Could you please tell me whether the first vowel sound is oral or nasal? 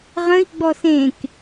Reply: nasal